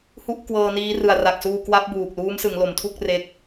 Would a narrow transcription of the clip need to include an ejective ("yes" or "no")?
no